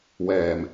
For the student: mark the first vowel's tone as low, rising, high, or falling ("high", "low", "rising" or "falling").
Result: low